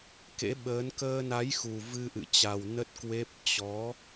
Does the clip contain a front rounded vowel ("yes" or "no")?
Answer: no